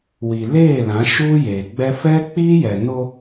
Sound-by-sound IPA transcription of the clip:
wi˨leː˦˨lã˨˦ ʃuː˦jeː˨ɡ͡bɛ˦ fɛ˦k͡piː˦jɛ˨no˦

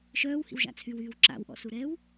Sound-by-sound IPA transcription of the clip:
ʃœːwhḭwʒa̰ t͡sʰywyːw ǁa̰wʔɔ̰suɾɛːw

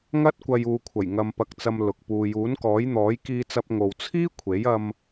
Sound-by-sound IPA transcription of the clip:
ŋɐ˥t̚kʷɐ˧j uː˨kʷʰɐ˨˩j ŋɐ˧mpɐ˧k̚t͡sɐ˧m lʊ˨k̚ puː˨juː˨˥nkɔː˨˥jn̪ɔː˨˥j kiː˧t͡sɐ˧p̚ ŋo˨w t͡sʰiː˥ kʷʰe˨˥jɐ˧m

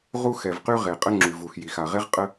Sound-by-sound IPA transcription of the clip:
ʁu˥xɛ˩vqy˥ ʁe˩qʼə˥ŋ͡ǁy˩vu˩x ji˩xa˩ʁe˥ʁ qʼə˥

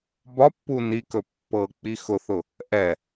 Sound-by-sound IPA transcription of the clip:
bɒpːu nikɵ pːɤk͡pi xʊθʊ | ʔɛ

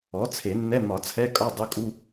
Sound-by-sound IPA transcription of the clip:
ɔ˩˥t͡sʰe˨˩˦nːɛ˧˥˧ mɒ˨˩˦t͡sʰɛ˧˥˧kʼɒ˧˥˧ dˤo˧˥˧kʼu˧˥˧

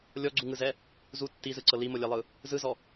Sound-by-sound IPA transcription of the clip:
lʲɔɡ͡ǀuŋɯzɛ | zu tːizɯǀɤ limolʲɛlˠɯ | zɯzɔ

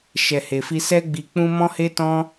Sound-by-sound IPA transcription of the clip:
ʃɛ˨he˨fi˧ sɛ˧ɡ͡bi˨k͡pũ˧ mɔ̃˧he˧tɔ̃˧

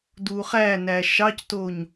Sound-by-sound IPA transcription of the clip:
duχænæ ʃɑctoɲ

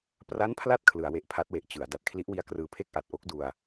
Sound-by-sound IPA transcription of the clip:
pra˦˥npʰla˦˥t̚ kʰlɯ˩˦a̯we˨˩ʔpʰa˦˥t̚we˨˩ʔ t͡ɕɯ˩˦a̯ da˨˩t̚kʰli˦˥ʔwi˦˥a̯ krɯː˧pʰe˥˩k̚ʔa˨˩t̚ ʔo˦˥k̚du˧a̯

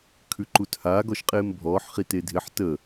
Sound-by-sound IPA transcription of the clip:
kʰʉǃuthaːɡ ɔʃqʼeːmbʱɔːħχi tedʱɪħ tə

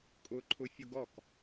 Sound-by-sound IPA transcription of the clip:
kʼʊǃʰʊfʲʊɡ ɔk

